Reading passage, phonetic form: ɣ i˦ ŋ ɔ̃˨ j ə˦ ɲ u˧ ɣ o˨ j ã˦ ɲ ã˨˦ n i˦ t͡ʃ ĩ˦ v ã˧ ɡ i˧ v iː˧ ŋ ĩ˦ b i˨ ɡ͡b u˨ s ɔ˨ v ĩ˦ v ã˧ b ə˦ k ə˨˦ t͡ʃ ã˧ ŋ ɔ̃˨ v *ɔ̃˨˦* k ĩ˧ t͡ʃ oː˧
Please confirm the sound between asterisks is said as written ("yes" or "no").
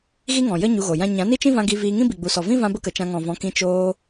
yes